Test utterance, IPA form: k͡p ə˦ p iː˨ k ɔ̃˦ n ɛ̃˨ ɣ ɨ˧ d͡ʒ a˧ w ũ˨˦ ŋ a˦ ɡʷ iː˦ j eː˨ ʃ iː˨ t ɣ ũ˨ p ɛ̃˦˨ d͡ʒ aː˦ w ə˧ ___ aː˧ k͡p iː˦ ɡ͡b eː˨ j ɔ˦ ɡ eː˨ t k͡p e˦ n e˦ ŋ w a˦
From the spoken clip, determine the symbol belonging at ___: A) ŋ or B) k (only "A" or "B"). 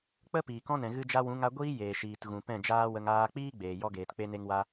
A